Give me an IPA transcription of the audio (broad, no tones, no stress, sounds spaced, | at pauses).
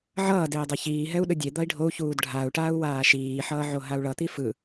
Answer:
ʕ ʌː d eː dˤ ɛ ç iː ɦ ɛ u̯ ɗ ɯ dʲ e d̪ ʌ i̯ ɖʱ o u̯ ç uː d ɖʱ a u̯ ʈ aː u̯ w aː ʃ iː ħ ʌː ʕ o ɦ a u̯ ɭ ʌ t̪ i f ɯ